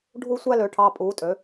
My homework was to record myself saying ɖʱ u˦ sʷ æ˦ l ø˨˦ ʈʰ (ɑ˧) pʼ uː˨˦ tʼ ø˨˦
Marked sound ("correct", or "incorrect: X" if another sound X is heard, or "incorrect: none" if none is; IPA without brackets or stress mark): correct